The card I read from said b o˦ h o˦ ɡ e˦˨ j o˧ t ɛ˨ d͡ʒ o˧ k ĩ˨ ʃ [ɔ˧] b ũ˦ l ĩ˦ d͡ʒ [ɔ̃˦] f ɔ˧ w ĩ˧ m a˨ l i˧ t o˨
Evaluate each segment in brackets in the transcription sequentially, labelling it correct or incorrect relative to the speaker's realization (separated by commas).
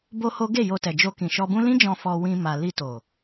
correct, incorrect